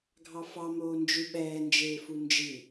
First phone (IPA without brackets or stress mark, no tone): ɡʱ